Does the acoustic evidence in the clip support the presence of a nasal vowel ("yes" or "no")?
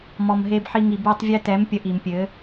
no